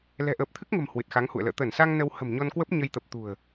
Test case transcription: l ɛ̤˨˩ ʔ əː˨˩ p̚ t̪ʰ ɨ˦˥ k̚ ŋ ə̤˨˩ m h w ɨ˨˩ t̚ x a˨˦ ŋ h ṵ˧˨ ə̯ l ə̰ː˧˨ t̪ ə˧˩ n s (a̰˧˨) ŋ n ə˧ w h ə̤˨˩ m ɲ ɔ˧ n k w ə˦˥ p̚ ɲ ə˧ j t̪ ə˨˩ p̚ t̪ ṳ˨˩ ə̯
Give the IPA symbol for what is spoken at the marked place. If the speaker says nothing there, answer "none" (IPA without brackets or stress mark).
a˧